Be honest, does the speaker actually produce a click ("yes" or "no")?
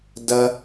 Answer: no